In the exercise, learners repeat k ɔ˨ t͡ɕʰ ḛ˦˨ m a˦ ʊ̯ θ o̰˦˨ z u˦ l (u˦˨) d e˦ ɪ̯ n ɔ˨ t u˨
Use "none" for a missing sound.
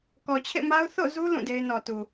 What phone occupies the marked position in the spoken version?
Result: ũ˦˨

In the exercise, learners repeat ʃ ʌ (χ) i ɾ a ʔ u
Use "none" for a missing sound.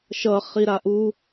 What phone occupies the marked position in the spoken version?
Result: χ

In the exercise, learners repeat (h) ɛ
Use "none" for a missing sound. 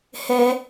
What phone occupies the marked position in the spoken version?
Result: h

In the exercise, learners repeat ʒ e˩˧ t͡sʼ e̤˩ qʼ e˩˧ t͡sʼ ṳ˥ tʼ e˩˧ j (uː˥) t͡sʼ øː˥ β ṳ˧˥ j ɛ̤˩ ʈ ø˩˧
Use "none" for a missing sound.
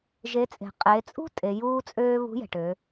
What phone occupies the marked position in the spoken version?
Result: uː˥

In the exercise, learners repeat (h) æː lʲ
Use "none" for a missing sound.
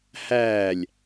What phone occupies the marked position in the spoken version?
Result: h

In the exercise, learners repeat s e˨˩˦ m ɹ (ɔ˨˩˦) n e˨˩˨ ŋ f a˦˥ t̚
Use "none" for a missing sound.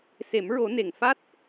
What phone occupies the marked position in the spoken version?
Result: o˨˩˦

